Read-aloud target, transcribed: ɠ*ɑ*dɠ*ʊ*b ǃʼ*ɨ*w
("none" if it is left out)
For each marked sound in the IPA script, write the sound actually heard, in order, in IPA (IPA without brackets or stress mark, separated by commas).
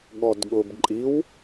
ɔ, ʊ, i